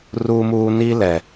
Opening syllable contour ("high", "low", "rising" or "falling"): high